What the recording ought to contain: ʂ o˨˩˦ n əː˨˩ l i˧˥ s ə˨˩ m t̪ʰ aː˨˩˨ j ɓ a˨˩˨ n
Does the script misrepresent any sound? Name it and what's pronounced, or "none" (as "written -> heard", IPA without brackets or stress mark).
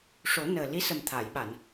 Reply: none